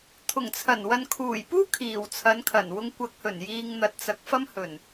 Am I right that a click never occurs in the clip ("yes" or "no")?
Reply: yes